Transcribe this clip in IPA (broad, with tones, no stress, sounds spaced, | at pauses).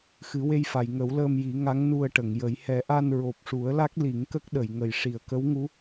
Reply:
x ɨ˨˩˦ w e˧ j f a˨˩˨ j ŋ ə˨˩˦ w l əː˧ m j i˨˩˦ ŋ a˧˥ ŋ n u˧ ə̯ ʈ ə˨˩˨ ŋ j ə˨˩˦ j h ɛ˨˩˦ ʔ a˧ n ɹ o˨˩ p̚ ʂ u˨˩˦ ə̯ l a˦˥ k̚ l i˨˩˦ ŋ k ə˦˥ k̚ ɗ ə˨˩˨ j ŋ ə˨˩ j ʂ i˨˩˨ ə̯ k ə˧˥ w ŋ u˧˥